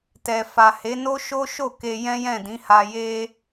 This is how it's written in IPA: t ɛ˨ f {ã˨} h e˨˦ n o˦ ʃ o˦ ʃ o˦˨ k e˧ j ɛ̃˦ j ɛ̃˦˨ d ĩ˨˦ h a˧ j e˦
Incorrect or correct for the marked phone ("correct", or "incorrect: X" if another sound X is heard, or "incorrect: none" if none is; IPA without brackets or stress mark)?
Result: incorrect: a˨